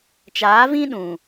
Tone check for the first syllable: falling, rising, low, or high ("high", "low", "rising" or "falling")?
rising